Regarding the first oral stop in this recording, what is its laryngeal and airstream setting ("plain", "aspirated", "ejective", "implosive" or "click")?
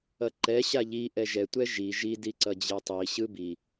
click